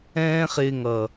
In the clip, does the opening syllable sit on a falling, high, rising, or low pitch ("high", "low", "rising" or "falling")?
high